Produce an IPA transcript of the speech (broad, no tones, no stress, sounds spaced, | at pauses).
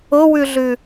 ʊ w ʉ ɮ ʉ